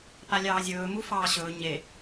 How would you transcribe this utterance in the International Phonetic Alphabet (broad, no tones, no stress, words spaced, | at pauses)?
palʲɑːzʲɵːmu fɑːɕɵː ɲe